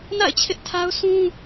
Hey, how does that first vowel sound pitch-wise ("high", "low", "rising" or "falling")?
falling